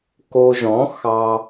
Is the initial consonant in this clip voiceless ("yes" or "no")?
yes